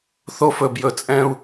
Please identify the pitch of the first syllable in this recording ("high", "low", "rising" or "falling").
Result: high